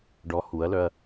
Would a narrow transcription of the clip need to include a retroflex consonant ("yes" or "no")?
yes